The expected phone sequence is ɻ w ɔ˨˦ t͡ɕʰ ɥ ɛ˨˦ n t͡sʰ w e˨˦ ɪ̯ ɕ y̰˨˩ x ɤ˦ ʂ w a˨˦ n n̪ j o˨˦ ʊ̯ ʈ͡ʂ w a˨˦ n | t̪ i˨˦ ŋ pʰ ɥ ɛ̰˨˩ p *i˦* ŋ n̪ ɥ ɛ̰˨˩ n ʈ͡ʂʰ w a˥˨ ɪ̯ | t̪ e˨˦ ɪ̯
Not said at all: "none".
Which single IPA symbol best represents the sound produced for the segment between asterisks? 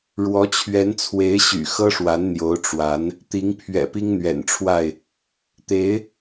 i˦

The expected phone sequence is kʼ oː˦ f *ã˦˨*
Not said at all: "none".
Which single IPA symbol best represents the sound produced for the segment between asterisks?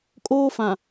ã˨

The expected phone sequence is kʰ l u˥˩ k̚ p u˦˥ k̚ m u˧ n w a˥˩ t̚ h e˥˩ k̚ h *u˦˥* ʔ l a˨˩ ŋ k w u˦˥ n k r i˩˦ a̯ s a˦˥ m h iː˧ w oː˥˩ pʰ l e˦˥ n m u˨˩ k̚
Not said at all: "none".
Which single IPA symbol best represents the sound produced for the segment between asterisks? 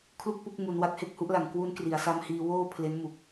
u˦˥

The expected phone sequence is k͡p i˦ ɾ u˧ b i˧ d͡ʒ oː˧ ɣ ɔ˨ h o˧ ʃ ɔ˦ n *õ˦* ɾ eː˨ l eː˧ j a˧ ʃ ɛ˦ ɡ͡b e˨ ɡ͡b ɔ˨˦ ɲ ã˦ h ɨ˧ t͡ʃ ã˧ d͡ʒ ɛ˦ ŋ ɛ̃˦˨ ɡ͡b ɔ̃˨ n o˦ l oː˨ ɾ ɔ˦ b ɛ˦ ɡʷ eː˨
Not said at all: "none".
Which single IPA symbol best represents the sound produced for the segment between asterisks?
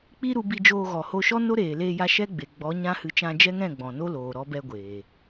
o˦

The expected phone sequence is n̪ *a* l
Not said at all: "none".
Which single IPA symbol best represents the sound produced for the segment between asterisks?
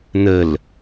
ə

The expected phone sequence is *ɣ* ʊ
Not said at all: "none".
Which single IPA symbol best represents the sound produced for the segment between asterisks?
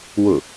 w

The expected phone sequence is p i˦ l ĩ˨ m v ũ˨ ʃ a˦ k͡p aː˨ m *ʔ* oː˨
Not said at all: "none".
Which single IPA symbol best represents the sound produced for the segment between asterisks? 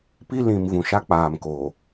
k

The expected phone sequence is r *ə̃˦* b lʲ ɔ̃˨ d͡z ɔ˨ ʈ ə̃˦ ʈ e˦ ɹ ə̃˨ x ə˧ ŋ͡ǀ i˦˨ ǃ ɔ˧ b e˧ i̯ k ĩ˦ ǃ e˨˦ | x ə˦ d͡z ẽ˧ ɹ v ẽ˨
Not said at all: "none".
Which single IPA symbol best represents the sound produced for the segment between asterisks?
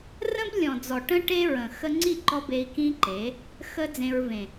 ə̃˦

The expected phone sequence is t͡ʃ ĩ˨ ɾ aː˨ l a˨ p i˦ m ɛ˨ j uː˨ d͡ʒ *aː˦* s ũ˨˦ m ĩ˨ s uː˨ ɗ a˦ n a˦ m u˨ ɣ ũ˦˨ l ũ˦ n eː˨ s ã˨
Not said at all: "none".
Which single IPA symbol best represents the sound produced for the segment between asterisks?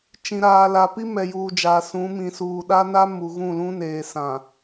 aː˨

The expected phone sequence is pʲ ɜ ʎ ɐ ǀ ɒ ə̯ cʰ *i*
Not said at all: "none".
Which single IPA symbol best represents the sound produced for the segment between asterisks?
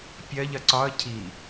i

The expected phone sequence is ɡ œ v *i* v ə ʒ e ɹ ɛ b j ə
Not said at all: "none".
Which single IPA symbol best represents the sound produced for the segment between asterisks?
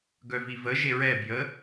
i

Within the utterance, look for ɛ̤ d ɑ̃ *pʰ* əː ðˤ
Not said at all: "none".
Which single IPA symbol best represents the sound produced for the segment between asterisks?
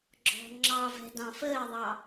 f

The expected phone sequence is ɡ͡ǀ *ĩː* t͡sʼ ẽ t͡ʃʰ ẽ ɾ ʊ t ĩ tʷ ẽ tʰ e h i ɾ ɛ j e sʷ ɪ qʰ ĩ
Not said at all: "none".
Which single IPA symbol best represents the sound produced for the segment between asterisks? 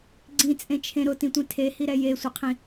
ĩ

